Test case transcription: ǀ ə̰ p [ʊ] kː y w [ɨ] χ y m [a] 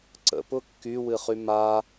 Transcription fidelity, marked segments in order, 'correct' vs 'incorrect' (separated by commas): correct, correct, correct